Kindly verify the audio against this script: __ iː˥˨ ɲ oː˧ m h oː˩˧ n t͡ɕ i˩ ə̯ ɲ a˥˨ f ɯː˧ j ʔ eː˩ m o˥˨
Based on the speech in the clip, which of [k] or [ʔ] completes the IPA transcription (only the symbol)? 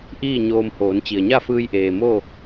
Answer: ʔ